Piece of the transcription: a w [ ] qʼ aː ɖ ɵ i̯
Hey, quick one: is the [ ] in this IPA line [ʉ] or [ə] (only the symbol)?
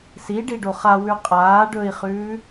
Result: ʉ